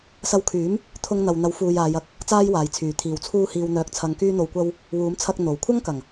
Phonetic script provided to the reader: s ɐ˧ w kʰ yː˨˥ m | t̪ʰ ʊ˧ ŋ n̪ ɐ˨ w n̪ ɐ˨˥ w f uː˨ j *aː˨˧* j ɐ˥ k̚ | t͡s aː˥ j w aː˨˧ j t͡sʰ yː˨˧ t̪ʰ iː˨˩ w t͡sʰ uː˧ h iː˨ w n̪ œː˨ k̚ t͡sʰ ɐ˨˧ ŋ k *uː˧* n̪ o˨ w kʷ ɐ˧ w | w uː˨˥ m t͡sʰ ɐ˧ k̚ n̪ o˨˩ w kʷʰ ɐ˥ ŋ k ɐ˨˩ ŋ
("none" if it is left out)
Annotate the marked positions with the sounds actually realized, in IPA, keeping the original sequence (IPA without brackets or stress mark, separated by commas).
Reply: aː˨˧, yː˧